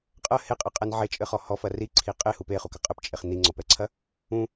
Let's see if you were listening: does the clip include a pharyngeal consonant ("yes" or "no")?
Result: yes